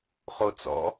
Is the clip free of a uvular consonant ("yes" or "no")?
no